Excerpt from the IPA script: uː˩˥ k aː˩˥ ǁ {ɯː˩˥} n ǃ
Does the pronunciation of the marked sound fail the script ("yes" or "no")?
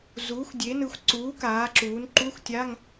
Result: yes